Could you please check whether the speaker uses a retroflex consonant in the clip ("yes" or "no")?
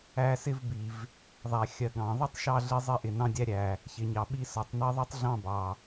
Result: no